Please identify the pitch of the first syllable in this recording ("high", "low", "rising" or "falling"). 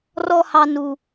high